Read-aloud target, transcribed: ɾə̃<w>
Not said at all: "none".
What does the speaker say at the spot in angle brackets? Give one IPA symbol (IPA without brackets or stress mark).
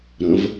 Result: v